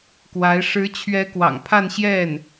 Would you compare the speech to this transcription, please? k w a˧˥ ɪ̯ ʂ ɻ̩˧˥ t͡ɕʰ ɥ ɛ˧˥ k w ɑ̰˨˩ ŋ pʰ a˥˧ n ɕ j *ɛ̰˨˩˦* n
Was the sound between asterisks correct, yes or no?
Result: no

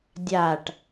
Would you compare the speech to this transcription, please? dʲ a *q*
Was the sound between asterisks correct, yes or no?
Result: no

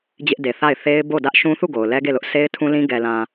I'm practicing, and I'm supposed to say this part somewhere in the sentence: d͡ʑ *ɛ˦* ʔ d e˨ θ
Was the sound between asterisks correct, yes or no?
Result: no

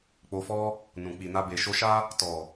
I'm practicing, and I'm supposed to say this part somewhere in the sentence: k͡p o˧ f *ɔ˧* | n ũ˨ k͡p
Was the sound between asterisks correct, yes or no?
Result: no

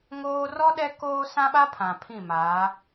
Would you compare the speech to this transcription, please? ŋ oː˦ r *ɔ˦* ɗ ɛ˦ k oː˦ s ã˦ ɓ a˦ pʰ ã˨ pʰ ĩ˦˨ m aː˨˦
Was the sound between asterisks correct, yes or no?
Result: yes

